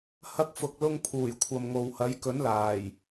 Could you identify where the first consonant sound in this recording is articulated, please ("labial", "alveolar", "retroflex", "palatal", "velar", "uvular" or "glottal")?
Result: glottal